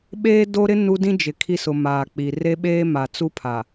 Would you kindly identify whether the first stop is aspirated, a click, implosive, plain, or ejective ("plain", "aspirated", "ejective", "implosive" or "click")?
implosive